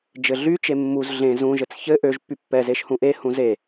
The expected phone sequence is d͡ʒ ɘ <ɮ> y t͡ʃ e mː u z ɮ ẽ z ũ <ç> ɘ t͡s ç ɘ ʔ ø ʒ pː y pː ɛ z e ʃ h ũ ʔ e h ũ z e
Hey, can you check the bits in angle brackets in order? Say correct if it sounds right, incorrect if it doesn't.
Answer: correct, incorrect

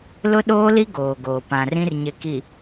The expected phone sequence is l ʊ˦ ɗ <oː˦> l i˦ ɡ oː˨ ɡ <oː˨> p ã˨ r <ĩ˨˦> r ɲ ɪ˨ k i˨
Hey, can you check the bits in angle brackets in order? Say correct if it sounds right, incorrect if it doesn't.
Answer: correct, correct, incorrect

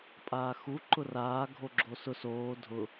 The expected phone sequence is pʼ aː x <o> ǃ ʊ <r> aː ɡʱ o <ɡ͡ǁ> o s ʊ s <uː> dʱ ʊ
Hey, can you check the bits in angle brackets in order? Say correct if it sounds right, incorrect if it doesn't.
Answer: incorrect, correct, correct, incorrect

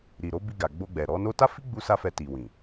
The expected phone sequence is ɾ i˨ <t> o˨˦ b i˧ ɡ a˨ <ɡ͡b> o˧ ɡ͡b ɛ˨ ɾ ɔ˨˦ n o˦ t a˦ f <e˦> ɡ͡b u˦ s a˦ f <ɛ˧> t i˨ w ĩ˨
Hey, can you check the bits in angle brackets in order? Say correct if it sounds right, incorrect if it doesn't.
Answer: incorrect, correct, incorrect, correct

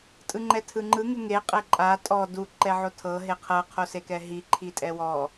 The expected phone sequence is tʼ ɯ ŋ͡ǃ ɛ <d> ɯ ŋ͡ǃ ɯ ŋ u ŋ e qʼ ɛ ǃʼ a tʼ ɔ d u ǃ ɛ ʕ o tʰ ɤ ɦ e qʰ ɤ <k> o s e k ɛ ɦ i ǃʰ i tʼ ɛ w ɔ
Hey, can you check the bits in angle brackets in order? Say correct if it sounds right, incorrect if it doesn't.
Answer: incorrect, incorrect

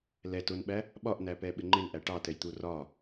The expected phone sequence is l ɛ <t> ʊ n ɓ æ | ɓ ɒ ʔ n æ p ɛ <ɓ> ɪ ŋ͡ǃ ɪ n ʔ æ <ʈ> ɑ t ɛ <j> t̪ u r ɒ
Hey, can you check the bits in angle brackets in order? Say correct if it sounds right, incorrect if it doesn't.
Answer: correct, correct, correct, correct

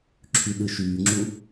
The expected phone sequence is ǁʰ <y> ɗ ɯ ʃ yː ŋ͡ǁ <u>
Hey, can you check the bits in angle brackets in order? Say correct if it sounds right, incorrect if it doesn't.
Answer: correct, correct

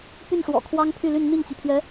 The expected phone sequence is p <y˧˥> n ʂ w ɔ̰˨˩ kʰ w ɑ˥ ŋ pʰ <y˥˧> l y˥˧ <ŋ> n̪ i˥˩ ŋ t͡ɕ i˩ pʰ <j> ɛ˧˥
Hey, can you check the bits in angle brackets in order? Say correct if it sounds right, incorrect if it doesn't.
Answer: incorrect, correct, incorrect, incorrect

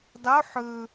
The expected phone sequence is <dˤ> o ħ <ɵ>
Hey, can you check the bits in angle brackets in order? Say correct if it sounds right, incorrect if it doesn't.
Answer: correct, correct

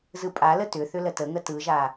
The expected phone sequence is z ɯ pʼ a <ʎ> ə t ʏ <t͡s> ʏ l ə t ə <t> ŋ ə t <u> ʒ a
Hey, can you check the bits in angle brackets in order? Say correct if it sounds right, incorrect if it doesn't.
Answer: incorrect, incorrect, incorrect, incorrect

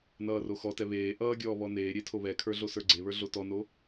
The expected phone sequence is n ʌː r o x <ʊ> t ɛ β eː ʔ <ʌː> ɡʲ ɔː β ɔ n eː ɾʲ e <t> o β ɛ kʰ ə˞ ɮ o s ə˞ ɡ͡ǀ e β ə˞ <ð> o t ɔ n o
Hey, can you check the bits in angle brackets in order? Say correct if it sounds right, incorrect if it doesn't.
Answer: incorrect, correct, incorrect, incorrect

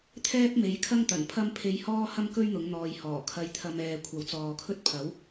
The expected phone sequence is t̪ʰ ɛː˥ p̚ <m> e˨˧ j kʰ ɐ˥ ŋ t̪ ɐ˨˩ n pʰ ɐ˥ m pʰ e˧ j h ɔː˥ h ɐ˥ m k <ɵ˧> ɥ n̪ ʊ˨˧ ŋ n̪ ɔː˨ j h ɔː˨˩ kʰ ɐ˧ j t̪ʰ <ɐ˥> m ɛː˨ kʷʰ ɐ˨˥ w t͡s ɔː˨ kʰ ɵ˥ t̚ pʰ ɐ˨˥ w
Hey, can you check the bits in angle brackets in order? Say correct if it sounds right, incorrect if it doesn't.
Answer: correct, incorrect, incorrect

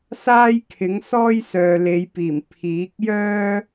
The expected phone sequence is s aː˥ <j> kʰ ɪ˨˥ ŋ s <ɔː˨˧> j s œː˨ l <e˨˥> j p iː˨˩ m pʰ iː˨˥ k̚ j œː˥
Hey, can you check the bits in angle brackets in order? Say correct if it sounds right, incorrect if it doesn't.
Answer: correct, incorrect, incorrect

